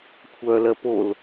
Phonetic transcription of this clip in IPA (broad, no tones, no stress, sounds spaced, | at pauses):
kʷʰ œː l ɜ p o l